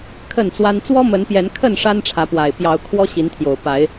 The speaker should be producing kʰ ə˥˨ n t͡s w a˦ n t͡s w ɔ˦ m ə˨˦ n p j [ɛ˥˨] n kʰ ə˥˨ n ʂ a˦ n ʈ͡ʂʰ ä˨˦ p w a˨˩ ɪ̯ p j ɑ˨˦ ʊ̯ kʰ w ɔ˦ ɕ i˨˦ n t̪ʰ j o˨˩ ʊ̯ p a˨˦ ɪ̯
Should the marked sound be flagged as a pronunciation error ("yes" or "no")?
yes